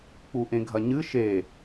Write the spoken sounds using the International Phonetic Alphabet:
k͡p u ʔ ẽ ɡʱ ɐ ɲ ɨ ʃ e

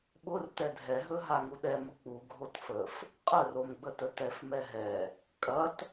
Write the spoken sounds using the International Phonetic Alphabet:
ɓ ʊ r t ɛ dʱ ɛ ɦ ɵ ɦ a ŋ u ɗ ɛ m ʊ k͡p u ɡʱ o t f ə f | qʼ ə r o m ɡ͡b ə t ə t ɛ f m ɛ ɦ ɛ | kʼ ɐ t

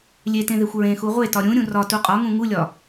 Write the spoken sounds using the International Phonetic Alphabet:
lʲ e t ẽ ð e xʷ ɹ ẽ x u ʁʷ e t ɒ ɾʲ ũ ɾʲ ũ r ɒ t u qʼ ɒ ŋ ũ ŋ u lʲ ɒ

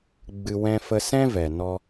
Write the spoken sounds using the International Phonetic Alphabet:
ɡ͡b ɨ˧ w ɛ̃˧ f ə˧ s ɛ̃˦ v ɛ˨ n ɔ˧

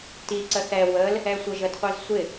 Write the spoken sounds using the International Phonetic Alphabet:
t i ǀ ə θ ɛ w ə l | ɛ sʷ ə ʒ ə d qʷ i z sʷ ɪ

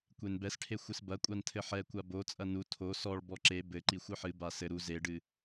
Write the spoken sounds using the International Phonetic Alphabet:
kʷ e n b ɛ s ʈʰ e xʷ ɨ s b ɐ kʷʼ a n tʰ ɘ ħ ɛ kʷ a b o t͡sʼ ɐ n u tʰ o s ɔ ɭ b ɔ ǁ e b ɘ ǃ i xʷ ɘ ħ ɨ b a s ɘ ɾ u z e ɖ ɨ

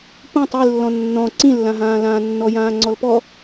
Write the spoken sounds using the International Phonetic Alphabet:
p ũ tˤ i lː ɔ̃ nː ɔ̃ ǀ ĩ lː ã ɦ ãː l ãː nː ɔ j ãː ŋ͡ǀ ɔ l p ɔ

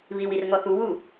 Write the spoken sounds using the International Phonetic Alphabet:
β i w i r ŋ ɔ θ u w u

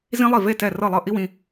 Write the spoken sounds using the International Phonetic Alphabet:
z ĩ˥ lˠ i˥˩ v e˥˩ t ɛ˥˩ r ɤ˥˩ lˠ ɤ˥˩ ʔ i˥ w ĩ˩˧˩

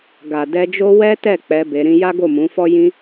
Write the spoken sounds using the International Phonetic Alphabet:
ɡ a˨ d ɛ˧ d͡ʒ o˦ w ɛ˦ t ɛ˦˨ k͡p ɛ˧ b e˧ ɾ ĩ˧ j a˦ ɡ o˦˨ m ũ˨˦ f ɔ˦ j ĩ˦

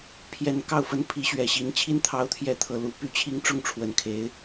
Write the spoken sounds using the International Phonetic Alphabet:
pʰ j ɛ˧˥ n k ɑ˥˩ ʊ̯ f ə˥ n pʰ i˧˥ ɕ ɥ ɛ˨˩ ɕ i˧˥ n t͡ɕʰ i˥ n t̪ʰ ɑ˧˥ ʊ̯ t̪ʰ j ɛ˧˥ t̪ʰ ɤ˨˩ l u˧˥ p y˥˩ t͡ɕʰ i˥ ŋ ʈ͡ʂ ʊ˥˩ ŋ ʈ͡ʂʰ w ə˨˩ n kʰ e˧˥ ɪ̯

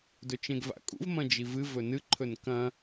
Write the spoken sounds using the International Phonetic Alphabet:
d ɵ t͡ʃ ẽ ɡ v a̰ kʼ ṵ v m ɐ̃ d͡ʒ i v ɨ v ɵ n ɨ ǃʰ ɵ n k ɐ̃

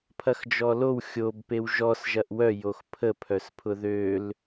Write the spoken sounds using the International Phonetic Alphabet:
pʰ ɐ x d͡ʒ ɔ l o w xʲ o b p e w ʒ ɔ s ʒ ɐ ʔ w œ j o x pʰ ə pʰ œ s pʰ ʊ ð ø l

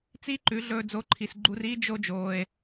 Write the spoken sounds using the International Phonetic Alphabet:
t͡s i˦ ǃ ʉ˨˦ ɮ ɵː˧ d͡z o˨˦ ǃʰ i˨ s ɡ͡ǃ u˧ r iː˦ d͡ʒ o˦ d͡ʒ oː˧ e̯

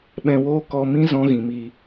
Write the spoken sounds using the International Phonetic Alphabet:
ɓ ɛ̃˧ w oː˦ k ɔ˧ m ĩ˦ z ɔ̃˦ ɣ ĩ˨ m i˧

